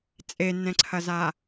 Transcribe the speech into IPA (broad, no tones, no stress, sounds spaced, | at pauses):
t͡sʼ e nː ɛ̃ ǀʰ ɐ z a